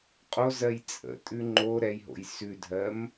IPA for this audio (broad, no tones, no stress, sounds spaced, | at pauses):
qʼ o z ɜ j t͡sʼ ə̰ tʼ ʉ ŋ͡ǃ o ɾ ɛ j ɦ o̰ j s ʉ dʱ ɜ m